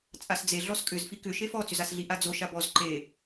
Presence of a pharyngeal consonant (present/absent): absent